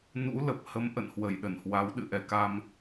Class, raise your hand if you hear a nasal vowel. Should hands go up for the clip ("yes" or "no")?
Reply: no